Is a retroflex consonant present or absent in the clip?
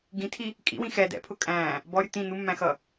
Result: absent